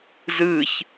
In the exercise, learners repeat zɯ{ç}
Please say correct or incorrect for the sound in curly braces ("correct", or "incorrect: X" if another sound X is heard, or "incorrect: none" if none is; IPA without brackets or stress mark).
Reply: correct